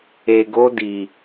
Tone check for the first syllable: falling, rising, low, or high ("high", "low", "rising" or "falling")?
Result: low